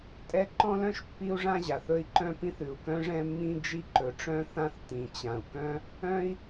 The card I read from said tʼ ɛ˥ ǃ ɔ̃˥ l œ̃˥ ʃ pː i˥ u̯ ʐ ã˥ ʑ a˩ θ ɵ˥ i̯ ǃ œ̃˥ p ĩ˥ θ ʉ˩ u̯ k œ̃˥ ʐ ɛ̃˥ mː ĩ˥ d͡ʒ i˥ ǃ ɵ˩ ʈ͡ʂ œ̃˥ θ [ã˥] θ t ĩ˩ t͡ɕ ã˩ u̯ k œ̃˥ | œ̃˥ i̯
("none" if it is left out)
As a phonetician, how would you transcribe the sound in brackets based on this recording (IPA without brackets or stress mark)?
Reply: ã˥